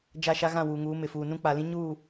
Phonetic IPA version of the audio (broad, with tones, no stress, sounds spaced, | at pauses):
d͡ʒ a˦˨ ʃ a˦ ɣ ã˦˨ w uː˨ ŋ uː˨˦ m ɪ˨ f uː˨ n ũ˦ k͡p a˨ l ĩ˦ ɲ uː˦˨